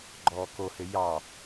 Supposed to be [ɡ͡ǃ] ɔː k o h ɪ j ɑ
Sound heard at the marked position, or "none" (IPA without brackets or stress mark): ɡ͡ǃ